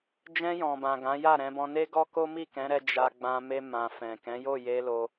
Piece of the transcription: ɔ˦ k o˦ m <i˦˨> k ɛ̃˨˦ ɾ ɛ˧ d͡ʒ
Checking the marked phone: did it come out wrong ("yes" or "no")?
no